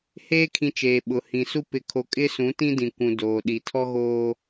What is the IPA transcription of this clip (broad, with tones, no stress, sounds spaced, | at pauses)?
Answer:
h eː˦ kʰ ĩ˨ t͡ʃ eː˨ ɓ ʊ˨ h ĩ˨ s u˦ p ɪ˨ kʰ o˨ kʼ ɪ˦ s ũ˨˦ t ĩ˦ d ĩ˨ kʷ ũ˨ d oː˨ ɗ i˨ tʰ ɔ˦ ɣ oː˦